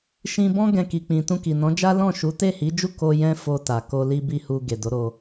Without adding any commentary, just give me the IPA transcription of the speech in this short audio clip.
ʃ ĩ˧ b ɔ̃˦ ɡ ɛ̃˧ k i˨ k͡p ĩ˨ t ũ˧ k i˨ n ɔ̃˨˦ d͡ʒ a˦ l ɔ̃˦˨ ʃ u˨˦ t e˦˨ h i˨˦ d͡ʒ u˦˨ k o˧ j ɛ̃˦ f o˧ t a˨ k o˧ l i˦ b i˦˨ h u˧ ɡ e˨ d o˨˦ ɾ o˧

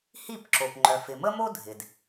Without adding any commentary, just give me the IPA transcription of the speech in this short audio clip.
h i˥˩ p ǁ o˩ p ŋ͡ǃ œ˩ f ɪ˩ m ə˥ m o˥ dʱ ɪ˩ d

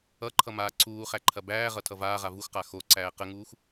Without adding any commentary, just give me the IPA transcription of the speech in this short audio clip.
ʌ ǃʰ ʌ m aː ǀʰ uː χ æ ǃʰ ɐ b æː ʁ ʌ tʰ ʌ v aː ʁ a v u x q a x o ǀ æː q ə ŋ uː x

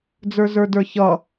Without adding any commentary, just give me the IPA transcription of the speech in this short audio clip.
d͡z ə˞ z ə˞ d ə˞ ç ʌ

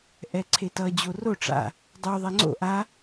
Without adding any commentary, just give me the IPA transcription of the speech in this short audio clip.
ʔ ɛ ǀʰ e t ʌ d͡ʑ o r o ʈ͡ʂ a̰ | dˤ u ðˤ ɛ ŋ͡ǀ o̰ ʔ a

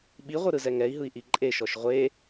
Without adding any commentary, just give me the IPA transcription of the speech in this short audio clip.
ɓ i ʁʷ ɯ ɾ ɯ z ɛ ŋ ɛ i̯ ɦ ɯ i̯ ʔ i ǃʼ e ʃ ɔ ʃ ʁʷ e

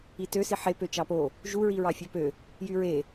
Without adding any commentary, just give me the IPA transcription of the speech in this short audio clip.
i t ø s i ħ e p ø t͡ʃ ɑ p o | ʒ u ɹ i ɹ ɑ fʲ ø p ø | j y ɹ e

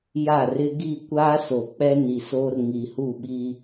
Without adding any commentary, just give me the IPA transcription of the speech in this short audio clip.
j a˦˨ r ɪ˦ ɡ i˦˨ kʷ aː˦ s o˨ k͡p ɛ˦ n i˨ s oː˦ r ŋ i˨ h u˦˨ ɓ i˦

